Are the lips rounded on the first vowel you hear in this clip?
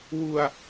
yes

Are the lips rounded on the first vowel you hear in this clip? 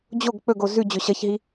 yes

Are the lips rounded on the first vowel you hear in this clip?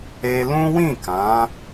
no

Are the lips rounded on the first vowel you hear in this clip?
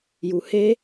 yes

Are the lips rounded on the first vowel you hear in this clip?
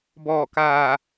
yes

